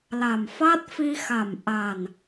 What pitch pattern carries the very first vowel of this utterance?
low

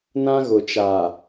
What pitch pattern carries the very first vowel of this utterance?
high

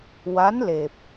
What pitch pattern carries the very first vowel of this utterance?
rising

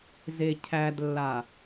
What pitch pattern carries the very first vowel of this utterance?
low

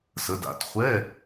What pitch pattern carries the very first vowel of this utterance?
rising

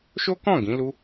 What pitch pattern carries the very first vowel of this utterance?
high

